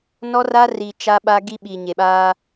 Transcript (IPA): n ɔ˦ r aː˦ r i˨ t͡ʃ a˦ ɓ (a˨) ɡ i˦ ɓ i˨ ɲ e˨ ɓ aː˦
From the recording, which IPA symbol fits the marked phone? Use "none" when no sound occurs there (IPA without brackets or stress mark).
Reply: a˦